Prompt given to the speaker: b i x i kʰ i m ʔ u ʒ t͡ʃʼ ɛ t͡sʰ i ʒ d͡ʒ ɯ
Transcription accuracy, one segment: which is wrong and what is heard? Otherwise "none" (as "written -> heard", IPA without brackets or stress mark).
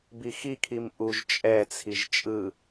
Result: d͡ʒ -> t͡ʃʼ